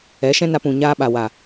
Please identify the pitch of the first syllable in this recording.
rising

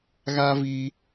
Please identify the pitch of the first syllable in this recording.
high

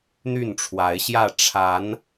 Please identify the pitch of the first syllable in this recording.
falling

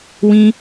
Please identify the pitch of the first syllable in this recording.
high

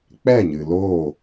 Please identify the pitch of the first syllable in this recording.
falling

